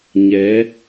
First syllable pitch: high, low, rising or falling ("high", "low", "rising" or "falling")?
rising